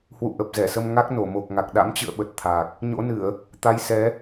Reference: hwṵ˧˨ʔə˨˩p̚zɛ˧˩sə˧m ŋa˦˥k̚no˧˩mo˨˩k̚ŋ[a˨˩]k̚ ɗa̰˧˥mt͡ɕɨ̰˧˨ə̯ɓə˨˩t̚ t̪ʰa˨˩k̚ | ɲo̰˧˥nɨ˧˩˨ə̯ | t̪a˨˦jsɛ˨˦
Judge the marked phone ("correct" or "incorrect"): correct